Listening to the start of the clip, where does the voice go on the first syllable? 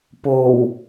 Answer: low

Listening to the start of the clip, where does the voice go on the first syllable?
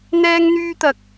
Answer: high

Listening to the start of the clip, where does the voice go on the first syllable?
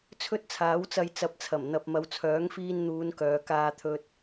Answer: high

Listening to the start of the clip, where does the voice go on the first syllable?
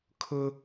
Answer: high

